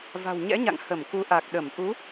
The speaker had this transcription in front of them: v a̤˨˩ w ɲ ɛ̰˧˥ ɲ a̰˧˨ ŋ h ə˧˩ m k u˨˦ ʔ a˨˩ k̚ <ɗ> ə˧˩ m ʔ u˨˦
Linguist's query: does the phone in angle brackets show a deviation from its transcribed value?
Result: no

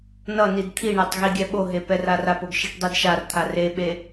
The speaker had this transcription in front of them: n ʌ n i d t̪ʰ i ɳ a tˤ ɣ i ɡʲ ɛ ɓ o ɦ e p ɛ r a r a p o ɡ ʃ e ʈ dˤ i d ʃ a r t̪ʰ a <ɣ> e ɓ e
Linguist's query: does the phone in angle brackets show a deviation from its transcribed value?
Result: yes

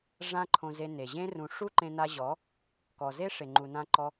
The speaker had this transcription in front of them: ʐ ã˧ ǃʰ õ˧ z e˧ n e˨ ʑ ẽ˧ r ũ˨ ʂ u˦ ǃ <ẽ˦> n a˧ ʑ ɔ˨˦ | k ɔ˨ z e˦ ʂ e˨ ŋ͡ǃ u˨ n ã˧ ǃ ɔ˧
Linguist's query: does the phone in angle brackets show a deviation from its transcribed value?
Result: yes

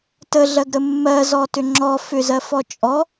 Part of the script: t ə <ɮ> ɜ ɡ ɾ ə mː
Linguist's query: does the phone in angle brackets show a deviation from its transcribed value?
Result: no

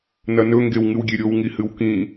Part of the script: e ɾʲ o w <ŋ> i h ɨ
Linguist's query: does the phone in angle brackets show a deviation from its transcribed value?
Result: no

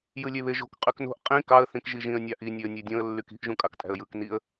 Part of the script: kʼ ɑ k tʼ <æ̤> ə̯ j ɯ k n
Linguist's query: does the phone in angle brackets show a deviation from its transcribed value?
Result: no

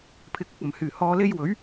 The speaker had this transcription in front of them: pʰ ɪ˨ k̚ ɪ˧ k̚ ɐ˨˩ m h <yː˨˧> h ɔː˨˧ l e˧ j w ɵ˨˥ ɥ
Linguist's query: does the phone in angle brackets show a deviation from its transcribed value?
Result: yes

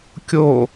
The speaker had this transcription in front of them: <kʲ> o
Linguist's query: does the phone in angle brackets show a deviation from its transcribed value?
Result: no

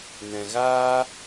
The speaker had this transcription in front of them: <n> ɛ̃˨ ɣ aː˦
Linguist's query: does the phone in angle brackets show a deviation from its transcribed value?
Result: no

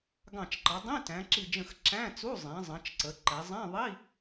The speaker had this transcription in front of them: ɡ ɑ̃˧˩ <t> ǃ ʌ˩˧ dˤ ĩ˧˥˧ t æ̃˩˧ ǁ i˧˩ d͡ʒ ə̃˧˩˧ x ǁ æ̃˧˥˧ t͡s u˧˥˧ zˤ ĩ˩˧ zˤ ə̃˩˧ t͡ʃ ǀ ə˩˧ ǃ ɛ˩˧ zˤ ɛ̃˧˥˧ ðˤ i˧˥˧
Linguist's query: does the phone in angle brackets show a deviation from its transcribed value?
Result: yes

